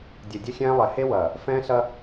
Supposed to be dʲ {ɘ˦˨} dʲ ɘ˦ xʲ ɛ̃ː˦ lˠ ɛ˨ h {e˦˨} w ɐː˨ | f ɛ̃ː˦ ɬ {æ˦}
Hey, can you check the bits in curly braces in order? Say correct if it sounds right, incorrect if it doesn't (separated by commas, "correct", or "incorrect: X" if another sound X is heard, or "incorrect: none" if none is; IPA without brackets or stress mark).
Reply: incorrect: ɘ˨, incorrect: e˦, incorrect: ɐ˦